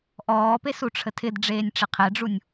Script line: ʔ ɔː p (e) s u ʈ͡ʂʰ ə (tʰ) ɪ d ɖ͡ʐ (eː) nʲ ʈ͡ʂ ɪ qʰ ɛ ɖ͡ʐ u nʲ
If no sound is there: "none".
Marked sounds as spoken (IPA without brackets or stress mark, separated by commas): e, tʰ, eː